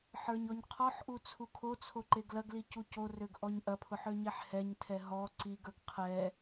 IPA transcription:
ħə˞ɲɔɲqʰɔħʔu t͡sʰukʰot͡sʰo ǃeɡlɐɡli cucorøɡ ʔɔɲʔɐpʰʊħ øɲɛħhɛɲtʰɛ ɦɔ ǀiɡə˞ɡ qʰɛ

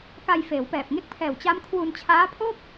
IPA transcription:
ka˧jfeː˩˦wpɛː˨˩p̚ ŋe˦˥k̚pʰɛː˨˩w t͡ɕa˦˥mkʰwu˧nt͡ɕʰaː˦˥pʰo˥˩k̚

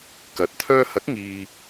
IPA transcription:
kɐ˨t̚t̪ʰœː˥ hɐ˨˥k̚ŋiː˨

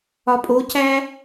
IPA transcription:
ɒpʼocæ

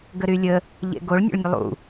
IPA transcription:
ɡəɾylʲə | ʎḛɡoɭ nʲo̰ɭnʲəlˠṵ

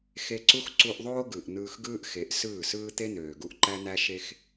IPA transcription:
xe˧ǀu˦x ǀu˧ʔðˤoː˦ ɡɯ˨ʔ n̪ɯː˧xɡɯː˦ʔxe˨˦ʔ sɯː˦˨sɯː˦ t̪e˦n̪øː˨ɡu˧ʔ ǃæ˦n̪æ˦ʃe˦x

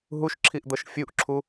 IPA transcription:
ɦuʃǁʰiʔd̪ɤʃ fʲuʔǁʰu

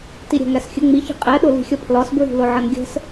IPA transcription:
tiɾʲæ̤ŋæsxʲə ŋ͡mi çi̤qʼɛ ɗʊli̤xʲɒpʰlɒs bɹi̤lʊʕʌnɡʲə̤s

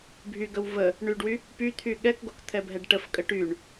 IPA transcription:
bʱyɡəw və | ɳyɖwy | pyt̪ʰy ɠɛkɡok t̪ʰɛbʱɛɖʈəfkʼə ʈyɳ

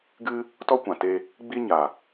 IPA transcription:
ɡɨ˧ | tɔ˦kʷã˨te˧ | ɡ͡bi˦ ɲa˨

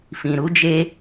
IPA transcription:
fĩ˨ɾu˦d͡ʒe˦

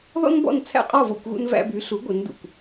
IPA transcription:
ðɔ̰˥nbɔ̰˥˩nt͡sʰæ̰˥˩ qʼɔ˥˩vo̰˥˩kʷɣṵ˧n væ̰˧by˩˥ɬu˩˥ ɡʷɘ˩˥ndṵ˩kʷ

